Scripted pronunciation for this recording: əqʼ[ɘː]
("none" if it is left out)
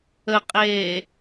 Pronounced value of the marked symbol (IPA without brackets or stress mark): eː